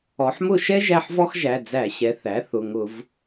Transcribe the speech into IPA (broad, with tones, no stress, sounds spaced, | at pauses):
ɔ˩˧ ħ m ʊ˦˨ ʃ ɛ˥ ʒ æ˦˨ ħ v ɔ˥ x ʒ æ˩˧˩ d͡z æ˧˩˧ ɕ ɛ˩˧ θ æ˩˥ θ ʊ˩˧˩ ŋ ʊ˧˩˧ v